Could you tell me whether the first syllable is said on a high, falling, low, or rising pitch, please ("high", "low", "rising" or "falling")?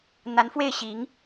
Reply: rising